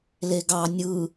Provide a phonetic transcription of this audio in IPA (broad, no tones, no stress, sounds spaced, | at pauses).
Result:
l e ɡ ɑ nʲ ɯ